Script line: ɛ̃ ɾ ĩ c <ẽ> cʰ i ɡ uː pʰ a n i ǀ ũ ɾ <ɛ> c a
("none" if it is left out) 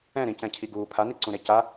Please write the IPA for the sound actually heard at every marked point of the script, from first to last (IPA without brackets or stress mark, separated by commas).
ɛ̃, e